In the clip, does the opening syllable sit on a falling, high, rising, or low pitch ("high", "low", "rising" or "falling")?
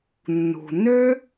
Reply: low